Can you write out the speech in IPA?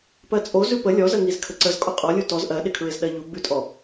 p ɜ t͡sʼ o z ʉ p ə lʲ ɔ z ə ŋ i z kʰ ə ǀ ə z kʼ ɔ qʼ ɔ lʲ u t ɔ z ʔ ɜ ɗ ɪ kʰ ɹ ɪ z ɗ ɜ ʎ u ɡ͡b ʉ tʼ ɔ

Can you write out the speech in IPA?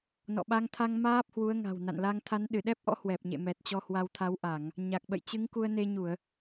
n ɔ̰˧˨ ɓ a˧ ŋ t̪ʰ a˧ ŋ m aː˦˥ p̚ h w u˨˦ ə̯ ŋ a̤˨˩ w n a̰˧˨ n l a˧ ŋ t̪ʰ a˨˦ n ɗ ɨ˧˩ ɗ ɛ˦˥ p̚ ʔ ɔ̰˧˥ h w ɛ˨˩ p̚ ɲ ḛ˧˨ m ɛ˨˩ t̚ t͡ɕ ɔ˧ h w a˨˦ w t̪ʰ a˨˦ w ʔ a˧˩˨ ŋ | ɲ a˨˩ k̚ ɓ ə̰˧˨ j t͡ɕ ɨ˨˦ ŋ k u˧ ə̯ n e˧ ɲ u˧˩˨ ə̯

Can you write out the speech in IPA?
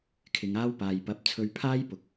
kʰ ɪ˨˧ ŋ aː˥ w p aː˨ j p ɐ˨˥ p̚ t͡sʰ ɵ˧ ɥ pʰ aː˥ j p ʊ˨ k̚

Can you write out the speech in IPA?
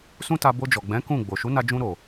s ũ˦ t a˧ b o˧ d͡ʒ ɔ˨ ɡ͡b ɛ̃˨˦ k ũ˦˨ ɡ͡b o˨ ʃ u˨˦ n a˧ d͡ʒ ũ˧ ɾ o˨

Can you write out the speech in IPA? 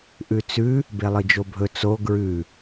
ʔ ʉ t͡s ʉ | b e lˠ ɨ d͡ʒ o bʱ ɵ t͡s o ɡ ɹ ʉ

